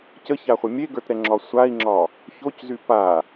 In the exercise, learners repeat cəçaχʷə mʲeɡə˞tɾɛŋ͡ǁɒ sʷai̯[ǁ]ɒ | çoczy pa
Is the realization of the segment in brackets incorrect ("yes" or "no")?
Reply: yes